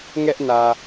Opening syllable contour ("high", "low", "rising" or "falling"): high